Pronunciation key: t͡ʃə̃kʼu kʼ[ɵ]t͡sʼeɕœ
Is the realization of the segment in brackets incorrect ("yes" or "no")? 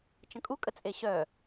yes